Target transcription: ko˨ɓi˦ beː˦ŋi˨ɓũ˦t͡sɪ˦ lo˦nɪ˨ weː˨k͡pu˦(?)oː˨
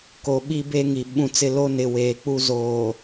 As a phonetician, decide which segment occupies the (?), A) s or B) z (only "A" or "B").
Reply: B